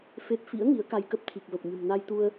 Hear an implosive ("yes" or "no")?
no